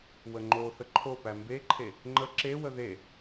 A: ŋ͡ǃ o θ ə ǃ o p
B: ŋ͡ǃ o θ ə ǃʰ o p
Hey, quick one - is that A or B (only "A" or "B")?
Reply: B